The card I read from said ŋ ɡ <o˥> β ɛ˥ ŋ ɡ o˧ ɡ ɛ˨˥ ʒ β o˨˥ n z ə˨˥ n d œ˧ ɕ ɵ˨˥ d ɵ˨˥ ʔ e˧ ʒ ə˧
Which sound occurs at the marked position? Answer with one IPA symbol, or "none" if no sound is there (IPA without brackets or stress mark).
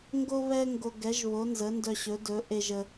o˥